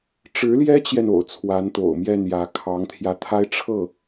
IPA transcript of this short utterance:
ʈ͡ʂɻ̩˧˥ljɛ˥t͡ɕjɛ˨n o̰˨˩ʊ̯t͡sʰwa˧˥nt̪o̰˨˩ʊ̯ mjɛ˥˩njä˧˥kʰɑ˧˥ŋt̪ʰjä˧ t̪ʰa˥ɪ̯ʈ͡ʂʰɤ˥˩

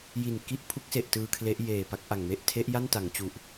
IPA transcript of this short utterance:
ji˨˩nki˦˥ʔpʰu˦˥k̚se˨˩ʔ tɯː˧kʰle˦˥ʔjeː˨˩pa˦˥k̚ ʔa˨˩ŋme˦˥ʔ tʰe˦˥ʔja˥˩nta˩˦ŋ t͡ɕu˨˩ʔ

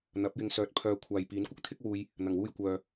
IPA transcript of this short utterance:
n̪ɐ˨˥p̚jɪ˧ŋsœː˧t̚ pʰœː˧kʷʰaː˨j piː˨˥nkʷɪ˥k̚t̪ʰɪ˥k̚wuː˧j | n̪ɐ˨˩ŋwuː˧j kʷœː˨

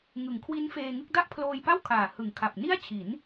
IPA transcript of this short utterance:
ŋɯ˩˦ŋkʰwi˦˥nfeː˧ŋɯ˥˩k̚ da˥˩ʔpʰloː˧jpa˥˩w kʰaː˨˩hɯ˨˩ŋ kʰa˨˩p̚ni˥˩a̯t͡ɕʰi˩˦n

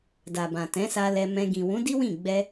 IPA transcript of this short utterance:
da˨bã˨tɛ̃˨˦sa˧ lɛ˧ mɛ̃˧ ɡĩ˨wũ˨˦di˦wĩ˦˨ ɡ͡bɛ˧

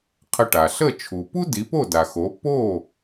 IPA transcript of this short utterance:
qʰə˧ʈa˩ ɬə˥˩ t͡ʃʰu˩pu˥ di˩˥po˥˩da˩xo˩˥ po˥˩

